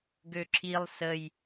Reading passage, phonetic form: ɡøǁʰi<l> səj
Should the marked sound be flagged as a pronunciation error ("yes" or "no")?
yes